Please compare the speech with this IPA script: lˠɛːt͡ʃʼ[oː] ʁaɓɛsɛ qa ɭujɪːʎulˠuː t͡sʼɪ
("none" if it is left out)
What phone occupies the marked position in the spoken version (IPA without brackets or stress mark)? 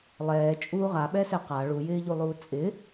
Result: uː